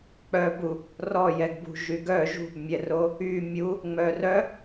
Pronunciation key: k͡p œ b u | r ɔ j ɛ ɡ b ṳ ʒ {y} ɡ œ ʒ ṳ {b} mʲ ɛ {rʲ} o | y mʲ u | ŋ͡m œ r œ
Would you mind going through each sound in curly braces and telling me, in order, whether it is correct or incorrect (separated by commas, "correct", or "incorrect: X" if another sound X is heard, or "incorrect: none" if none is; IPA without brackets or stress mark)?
correct, correct, incorrect: r